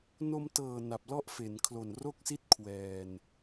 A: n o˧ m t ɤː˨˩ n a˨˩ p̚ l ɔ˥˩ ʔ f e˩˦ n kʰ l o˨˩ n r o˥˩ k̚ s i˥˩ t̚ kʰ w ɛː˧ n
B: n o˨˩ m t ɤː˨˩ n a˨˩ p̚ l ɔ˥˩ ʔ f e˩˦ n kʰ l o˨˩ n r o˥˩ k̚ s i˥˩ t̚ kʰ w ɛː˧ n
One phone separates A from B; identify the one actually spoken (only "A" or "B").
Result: A